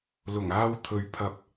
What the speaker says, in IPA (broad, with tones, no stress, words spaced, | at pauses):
lʊ˨˩ŋaː˧w t̪ʰɵ˨˧ɥ pʰɐ˨p̚